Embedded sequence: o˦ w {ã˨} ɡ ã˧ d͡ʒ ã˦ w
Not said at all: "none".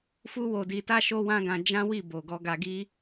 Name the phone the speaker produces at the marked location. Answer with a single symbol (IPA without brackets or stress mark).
ã˦